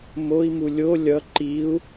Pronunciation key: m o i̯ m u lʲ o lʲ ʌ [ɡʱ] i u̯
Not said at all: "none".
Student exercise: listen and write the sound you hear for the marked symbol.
ǃ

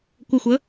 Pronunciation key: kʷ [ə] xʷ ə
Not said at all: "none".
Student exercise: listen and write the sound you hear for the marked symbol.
ə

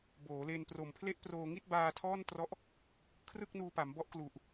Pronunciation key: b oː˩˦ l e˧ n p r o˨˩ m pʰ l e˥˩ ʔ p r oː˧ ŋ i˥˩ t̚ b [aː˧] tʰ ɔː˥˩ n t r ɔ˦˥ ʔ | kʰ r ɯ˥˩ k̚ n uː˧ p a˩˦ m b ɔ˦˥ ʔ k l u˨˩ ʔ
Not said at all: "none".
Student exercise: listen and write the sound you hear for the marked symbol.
aː˧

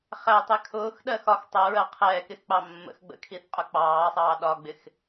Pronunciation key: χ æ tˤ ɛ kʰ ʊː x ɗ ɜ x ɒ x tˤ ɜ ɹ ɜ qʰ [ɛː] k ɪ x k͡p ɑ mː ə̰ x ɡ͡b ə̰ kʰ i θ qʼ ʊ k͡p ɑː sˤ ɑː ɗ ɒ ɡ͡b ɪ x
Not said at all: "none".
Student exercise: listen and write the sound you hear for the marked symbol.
ɛː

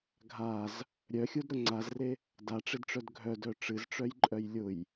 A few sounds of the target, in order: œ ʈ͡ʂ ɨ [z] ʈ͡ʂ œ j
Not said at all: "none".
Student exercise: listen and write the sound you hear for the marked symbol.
z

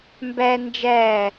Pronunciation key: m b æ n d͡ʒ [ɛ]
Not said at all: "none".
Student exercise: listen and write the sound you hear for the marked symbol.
æ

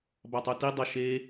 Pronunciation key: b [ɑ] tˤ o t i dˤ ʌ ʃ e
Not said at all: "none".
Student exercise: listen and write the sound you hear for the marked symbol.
ɑ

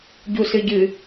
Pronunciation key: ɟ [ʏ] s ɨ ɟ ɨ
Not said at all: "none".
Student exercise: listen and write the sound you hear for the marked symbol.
u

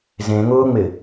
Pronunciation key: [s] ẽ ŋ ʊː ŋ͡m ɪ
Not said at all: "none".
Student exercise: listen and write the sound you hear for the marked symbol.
z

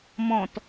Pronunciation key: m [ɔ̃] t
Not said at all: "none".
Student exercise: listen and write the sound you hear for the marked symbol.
ɔ̃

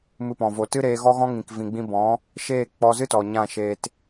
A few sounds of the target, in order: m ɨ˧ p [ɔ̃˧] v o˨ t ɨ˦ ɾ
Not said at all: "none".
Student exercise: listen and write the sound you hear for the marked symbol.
ɔ̃˨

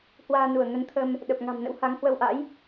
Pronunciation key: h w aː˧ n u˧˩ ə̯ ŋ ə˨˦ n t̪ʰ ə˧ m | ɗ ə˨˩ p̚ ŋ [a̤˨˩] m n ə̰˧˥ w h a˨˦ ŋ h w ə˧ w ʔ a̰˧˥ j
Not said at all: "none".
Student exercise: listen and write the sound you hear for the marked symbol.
a̤˨˩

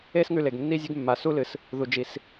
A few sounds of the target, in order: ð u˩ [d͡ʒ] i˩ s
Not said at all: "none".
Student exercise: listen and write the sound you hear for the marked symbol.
d͡ʒ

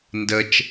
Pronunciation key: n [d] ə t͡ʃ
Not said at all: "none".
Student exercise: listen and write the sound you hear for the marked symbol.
d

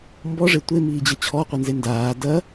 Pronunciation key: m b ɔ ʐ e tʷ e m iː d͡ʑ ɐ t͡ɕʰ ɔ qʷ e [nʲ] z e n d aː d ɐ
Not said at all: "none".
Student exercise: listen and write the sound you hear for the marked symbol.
n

